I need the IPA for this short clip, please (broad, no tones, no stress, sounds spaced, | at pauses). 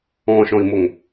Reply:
ɔ̃ ʃ ɔ̃ i̯ m o ŋ